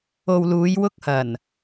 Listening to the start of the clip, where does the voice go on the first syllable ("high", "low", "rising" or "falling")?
low